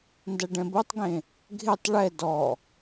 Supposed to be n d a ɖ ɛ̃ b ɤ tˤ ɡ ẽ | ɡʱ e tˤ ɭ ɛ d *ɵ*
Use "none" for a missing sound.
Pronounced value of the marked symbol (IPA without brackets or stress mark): ɔ